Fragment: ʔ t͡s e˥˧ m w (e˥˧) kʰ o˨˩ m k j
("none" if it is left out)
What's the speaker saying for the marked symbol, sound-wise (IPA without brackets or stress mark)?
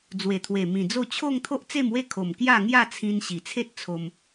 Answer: e˥˧